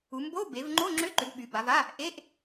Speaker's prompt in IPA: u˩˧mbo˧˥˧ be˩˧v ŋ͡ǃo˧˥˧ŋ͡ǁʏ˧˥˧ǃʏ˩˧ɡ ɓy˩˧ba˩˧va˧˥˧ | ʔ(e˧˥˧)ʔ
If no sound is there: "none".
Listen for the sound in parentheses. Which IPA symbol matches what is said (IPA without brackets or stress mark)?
e˧˥˧